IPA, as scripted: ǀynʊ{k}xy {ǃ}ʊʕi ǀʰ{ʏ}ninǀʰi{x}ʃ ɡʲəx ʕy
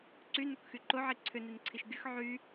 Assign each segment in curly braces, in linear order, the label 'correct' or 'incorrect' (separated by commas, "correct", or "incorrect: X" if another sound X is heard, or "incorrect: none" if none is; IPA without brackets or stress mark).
correct, correct, correct, incorrect: none